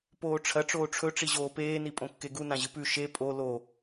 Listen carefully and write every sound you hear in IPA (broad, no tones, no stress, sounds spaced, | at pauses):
p oː ʈ͡ʂʰ ɐ ʈ͡ʂ oː ʈ͡ʂʰ ɵ ʈ͡ʂ i ʑ oː p eː n i pʼ õ kː e ɡ u n ã ʑ ɨ p ʉ ʃ e pʼ o l o